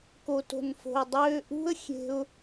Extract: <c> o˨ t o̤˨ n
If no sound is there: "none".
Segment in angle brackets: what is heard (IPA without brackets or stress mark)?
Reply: k